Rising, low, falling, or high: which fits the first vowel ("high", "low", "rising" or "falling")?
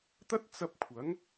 high